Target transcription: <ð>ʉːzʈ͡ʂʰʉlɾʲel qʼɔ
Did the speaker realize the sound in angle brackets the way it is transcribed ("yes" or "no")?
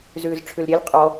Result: no